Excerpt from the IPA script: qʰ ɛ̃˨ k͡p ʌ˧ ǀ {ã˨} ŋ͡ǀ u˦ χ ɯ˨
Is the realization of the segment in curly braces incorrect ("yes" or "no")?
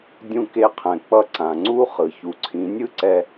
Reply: no